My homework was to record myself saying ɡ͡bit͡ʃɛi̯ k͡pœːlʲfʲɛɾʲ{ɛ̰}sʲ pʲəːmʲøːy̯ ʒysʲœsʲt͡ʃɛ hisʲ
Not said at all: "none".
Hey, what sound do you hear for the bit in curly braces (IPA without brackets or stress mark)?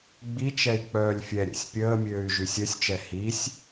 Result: ɛ̰